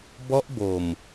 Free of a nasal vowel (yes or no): yes